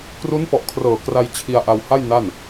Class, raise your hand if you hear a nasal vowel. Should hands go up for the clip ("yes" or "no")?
no